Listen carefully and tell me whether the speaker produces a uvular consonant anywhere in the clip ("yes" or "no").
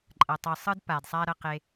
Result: yes